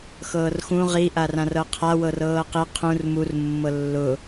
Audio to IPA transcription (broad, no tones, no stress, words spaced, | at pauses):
xɤːrxũ ʁi ʔarãrɤqʰa wɤrɤːqi qʰũr mur mːɤlːʊ